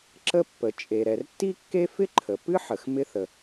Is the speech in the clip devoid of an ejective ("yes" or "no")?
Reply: no